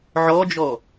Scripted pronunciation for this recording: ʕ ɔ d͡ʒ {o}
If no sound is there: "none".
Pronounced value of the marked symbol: ɔ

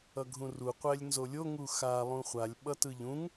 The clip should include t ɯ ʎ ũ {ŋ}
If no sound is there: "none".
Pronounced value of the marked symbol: ŋ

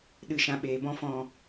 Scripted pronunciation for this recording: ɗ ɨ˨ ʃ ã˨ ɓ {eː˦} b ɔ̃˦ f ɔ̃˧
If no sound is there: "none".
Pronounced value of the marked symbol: eː˨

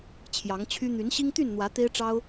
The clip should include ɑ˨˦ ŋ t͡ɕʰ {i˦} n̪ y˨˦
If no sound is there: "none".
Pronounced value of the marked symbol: y˦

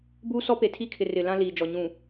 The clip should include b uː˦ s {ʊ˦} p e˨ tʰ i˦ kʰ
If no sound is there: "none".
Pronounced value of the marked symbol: ɔ˦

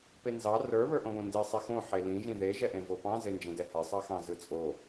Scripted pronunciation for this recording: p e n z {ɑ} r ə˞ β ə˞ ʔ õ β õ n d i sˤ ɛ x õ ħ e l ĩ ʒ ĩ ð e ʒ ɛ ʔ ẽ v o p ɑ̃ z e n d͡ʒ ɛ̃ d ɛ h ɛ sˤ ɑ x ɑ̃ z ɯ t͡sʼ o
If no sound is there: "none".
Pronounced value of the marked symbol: ɑ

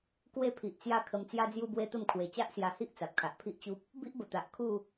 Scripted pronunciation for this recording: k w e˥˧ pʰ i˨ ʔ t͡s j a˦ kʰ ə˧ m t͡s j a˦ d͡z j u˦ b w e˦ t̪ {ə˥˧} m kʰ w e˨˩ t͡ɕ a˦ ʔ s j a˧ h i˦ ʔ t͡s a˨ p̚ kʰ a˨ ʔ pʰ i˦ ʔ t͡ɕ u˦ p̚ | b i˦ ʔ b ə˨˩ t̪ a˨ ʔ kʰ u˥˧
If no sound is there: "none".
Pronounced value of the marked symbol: ə˥˧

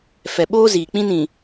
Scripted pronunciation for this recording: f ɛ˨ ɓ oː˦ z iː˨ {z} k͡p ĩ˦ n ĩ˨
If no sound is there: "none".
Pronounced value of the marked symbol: none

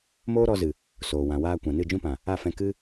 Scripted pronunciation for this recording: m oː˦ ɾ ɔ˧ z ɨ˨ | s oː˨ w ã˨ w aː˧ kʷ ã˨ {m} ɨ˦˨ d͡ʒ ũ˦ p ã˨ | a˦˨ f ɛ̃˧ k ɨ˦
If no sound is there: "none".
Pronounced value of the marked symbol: n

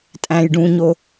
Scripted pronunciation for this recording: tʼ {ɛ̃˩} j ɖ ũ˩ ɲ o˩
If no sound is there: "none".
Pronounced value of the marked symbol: æ̃˩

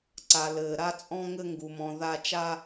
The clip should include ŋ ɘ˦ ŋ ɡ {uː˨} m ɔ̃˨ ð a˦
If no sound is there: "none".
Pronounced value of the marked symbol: u˨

